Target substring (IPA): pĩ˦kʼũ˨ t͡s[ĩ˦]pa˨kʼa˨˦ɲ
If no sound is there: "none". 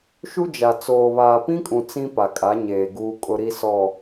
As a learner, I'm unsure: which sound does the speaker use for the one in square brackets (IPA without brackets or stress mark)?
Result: ĩ˦